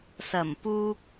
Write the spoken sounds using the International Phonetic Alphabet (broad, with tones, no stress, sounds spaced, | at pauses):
s ɐ˨˩ m p uː˧ k̚